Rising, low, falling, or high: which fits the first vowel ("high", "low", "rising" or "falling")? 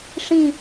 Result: falling